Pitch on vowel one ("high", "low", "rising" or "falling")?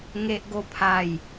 high